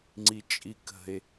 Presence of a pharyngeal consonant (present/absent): absent